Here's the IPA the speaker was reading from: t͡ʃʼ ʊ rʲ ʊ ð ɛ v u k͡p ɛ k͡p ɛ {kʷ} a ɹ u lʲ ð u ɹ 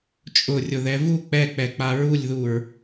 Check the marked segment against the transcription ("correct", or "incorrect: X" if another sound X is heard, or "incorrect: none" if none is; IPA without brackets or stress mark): incorrect: k͡p